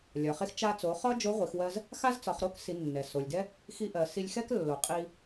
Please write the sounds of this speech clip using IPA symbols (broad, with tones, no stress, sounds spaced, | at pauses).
lʲ ɒ˩ χ e˧ x t͡ʃ a˧ t͡s o˩˧ χ ɒ˥ d͡ʒ o˧˥ ʁʷ i˩˧ x w ɜ˧ z | x a˥ z t͡s ɒ˩˧ χ ɾ o˥ k s i˩˧ nː ɛ˩ s o˩ lʲ d ɛ˥ | x i˧ ʔ ɜ˩ s i˧ lʲ x ɛ˥ k lː o˩˧ qʼ i˧